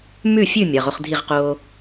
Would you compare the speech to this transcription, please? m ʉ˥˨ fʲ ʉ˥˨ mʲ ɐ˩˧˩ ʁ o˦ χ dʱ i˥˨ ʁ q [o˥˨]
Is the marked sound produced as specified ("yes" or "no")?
no